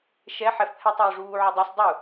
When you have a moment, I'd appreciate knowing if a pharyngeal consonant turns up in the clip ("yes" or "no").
yes